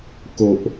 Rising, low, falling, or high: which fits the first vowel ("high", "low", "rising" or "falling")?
low